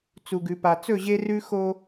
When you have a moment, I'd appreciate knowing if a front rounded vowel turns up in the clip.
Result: no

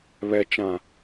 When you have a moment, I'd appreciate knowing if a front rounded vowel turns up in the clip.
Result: no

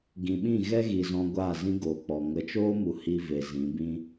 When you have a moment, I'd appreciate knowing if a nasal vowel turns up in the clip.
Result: yes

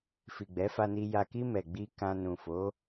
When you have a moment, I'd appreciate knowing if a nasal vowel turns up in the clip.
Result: yes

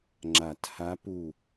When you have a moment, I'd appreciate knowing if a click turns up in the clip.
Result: yes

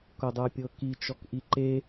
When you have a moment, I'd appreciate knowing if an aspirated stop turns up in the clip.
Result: no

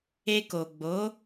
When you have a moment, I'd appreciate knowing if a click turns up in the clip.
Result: no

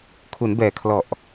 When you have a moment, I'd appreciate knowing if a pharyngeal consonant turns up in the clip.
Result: no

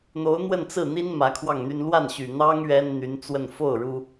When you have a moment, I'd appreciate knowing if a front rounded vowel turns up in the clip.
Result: yes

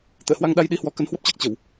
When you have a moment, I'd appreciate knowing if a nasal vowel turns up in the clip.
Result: no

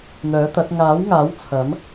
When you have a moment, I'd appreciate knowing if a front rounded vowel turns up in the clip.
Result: yes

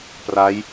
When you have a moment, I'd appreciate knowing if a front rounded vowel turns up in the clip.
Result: no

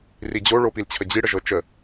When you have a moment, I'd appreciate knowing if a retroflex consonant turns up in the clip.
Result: yes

